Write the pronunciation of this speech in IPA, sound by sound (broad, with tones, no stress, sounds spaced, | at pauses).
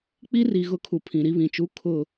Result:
k͡p i˦ r i˨ ɣ ʊ˦˨ kʰ u˨ pʰ ĩ˨ ɾ i˦ β ĩ˨ t͡ʃ u˦ kʰ ʊ˦˨